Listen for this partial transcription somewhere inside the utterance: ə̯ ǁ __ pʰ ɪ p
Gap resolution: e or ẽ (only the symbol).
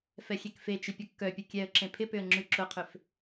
ẽ